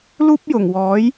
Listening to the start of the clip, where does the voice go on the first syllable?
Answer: high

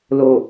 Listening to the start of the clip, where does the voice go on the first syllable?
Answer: low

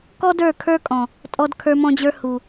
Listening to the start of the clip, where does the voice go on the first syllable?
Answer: high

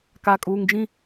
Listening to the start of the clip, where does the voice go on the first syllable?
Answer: low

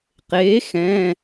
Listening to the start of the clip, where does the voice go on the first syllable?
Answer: rising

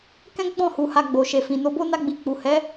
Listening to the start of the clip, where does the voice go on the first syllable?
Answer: high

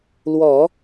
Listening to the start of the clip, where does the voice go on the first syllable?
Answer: low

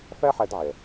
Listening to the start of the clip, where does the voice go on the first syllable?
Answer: high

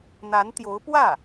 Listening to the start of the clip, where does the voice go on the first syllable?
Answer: rising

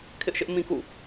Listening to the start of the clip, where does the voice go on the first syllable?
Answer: high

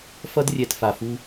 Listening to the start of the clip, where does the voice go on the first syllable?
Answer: high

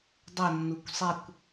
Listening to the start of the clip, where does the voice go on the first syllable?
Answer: falling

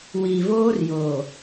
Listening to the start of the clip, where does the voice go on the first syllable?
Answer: low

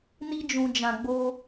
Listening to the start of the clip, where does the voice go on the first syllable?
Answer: high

